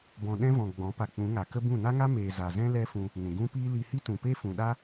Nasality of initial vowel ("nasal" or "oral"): nasal